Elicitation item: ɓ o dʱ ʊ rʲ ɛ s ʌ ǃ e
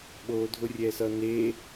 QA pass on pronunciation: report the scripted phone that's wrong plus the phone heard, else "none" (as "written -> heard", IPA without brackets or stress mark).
ǃ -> n